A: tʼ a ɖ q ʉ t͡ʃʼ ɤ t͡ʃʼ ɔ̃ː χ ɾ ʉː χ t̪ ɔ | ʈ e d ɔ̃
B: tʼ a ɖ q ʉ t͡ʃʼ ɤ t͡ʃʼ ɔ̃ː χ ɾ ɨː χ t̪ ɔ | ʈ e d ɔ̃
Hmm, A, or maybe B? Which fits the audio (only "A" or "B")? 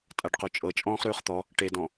A